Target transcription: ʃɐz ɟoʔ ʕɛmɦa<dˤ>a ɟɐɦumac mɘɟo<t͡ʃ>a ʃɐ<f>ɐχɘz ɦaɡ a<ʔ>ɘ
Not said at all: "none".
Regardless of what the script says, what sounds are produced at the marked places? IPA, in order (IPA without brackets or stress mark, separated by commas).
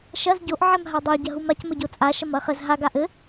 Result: dˤ, t͡sʼ, m, ʔ